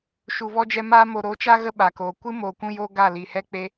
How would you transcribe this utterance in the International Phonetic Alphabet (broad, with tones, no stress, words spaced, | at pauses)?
ʃu˨vɔ˦d͡ʒɛ˧maː˦ mo˨ɾo˨˦t͡ʃa˦ ɣə˦ɓa˨koː˨ kʷɨ˦ moː˨kʷũ˧joː˧ ɡa˦˨li˨hɛ˦k͡pe˦